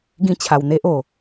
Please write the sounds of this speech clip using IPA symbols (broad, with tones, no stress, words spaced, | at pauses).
ɡĩ˥˧t͡ɕʰa˨˩w n̪e˦ʔ o˨˩